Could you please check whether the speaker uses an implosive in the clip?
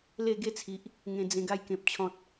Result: no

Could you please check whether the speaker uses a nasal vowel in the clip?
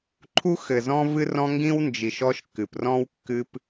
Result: yes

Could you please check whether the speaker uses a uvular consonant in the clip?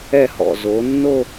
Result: no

